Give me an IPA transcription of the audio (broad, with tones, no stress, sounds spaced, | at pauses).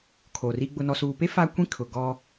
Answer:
kʰ o˨ r i˦ ɡ͡b ʊ˨ n ɔ˨ s uː˨ p e˦ f a˦ kʷ ĩ˦ kʰ ʊ˨ ɡ ɔ˦